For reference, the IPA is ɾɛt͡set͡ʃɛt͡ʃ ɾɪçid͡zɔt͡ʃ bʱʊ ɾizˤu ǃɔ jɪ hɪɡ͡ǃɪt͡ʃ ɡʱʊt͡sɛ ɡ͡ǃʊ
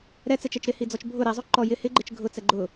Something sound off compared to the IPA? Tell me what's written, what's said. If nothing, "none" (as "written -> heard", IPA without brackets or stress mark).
ç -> h